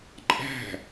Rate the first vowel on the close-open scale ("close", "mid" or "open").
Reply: open